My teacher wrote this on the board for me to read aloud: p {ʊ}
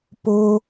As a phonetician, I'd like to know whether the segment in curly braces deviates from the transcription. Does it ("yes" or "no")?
no